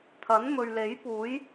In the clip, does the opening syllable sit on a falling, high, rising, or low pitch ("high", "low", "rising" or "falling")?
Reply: rising